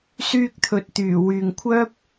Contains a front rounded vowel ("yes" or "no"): yes